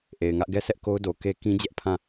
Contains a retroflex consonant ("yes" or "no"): no